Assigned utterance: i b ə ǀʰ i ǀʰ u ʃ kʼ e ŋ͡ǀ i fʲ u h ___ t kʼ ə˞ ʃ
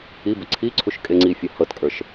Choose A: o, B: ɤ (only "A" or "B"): B